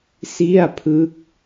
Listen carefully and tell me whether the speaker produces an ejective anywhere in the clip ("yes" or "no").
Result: no